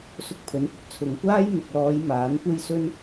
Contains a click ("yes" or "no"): no